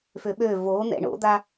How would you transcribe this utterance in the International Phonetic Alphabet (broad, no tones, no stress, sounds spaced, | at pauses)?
f ø ɓ ø v o n̪ ɛ̰ ɳ o̰ d̪ a